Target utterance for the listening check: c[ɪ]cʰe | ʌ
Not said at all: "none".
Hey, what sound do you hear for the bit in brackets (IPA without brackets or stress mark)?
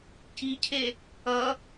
i